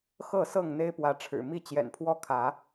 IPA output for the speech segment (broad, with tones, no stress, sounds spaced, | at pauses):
x ɤ˥˨ s ɤ˥˨ ŋ n̪ e˦ ɪ̯ p w ä˨˦ ʈ͡ʂʰ ɻ̩˨˩ m i˥˨ t͡ɕ j ɛ̰˨˩ n pʰ w ɔ˥˨ kʰ ä˨˦